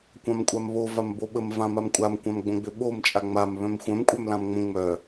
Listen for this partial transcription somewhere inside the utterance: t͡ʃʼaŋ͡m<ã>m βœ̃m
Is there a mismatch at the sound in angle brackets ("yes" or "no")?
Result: yes